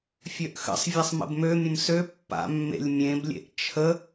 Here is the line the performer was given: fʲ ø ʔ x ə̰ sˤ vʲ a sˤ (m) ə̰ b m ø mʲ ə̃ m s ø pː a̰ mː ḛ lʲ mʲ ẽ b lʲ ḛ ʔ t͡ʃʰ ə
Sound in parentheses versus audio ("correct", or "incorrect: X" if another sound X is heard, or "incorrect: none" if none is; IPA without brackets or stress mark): correct